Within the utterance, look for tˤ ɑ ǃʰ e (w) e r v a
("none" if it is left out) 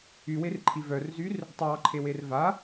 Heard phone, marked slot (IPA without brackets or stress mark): w